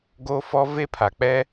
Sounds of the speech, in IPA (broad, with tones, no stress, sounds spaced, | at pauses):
ɡ oː˦ f ɔ˦ v e˦ pʰ a˨ k͡p ɛ˦